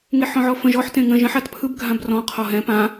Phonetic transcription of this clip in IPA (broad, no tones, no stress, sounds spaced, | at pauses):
ŋ e ħ ɔ̃ ʕ ɔ f ə̃ ʒ ɔ ħ t ẽ ŋ ə̃ ʒ ə̃ ħ a t pʰ ɯ b ɡʱ ã b r ɔ̃ qʰ ɔ ɦ ɛ̃ p ã